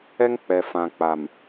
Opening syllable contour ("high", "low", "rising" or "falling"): high